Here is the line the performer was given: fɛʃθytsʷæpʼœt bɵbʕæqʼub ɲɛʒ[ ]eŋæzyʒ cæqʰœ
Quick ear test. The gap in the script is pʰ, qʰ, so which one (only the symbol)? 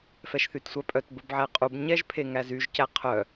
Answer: pʰ